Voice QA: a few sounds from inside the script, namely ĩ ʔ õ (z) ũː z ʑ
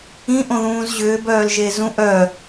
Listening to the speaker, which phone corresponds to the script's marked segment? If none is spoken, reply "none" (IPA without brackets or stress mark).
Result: ð